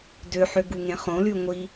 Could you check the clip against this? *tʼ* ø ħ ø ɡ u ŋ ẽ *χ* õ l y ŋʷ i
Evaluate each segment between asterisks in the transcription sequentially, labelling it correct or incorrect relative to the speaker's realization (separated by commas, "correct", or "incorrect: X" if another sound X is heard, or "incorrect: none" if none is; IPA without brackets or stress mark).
incorrect: d, correct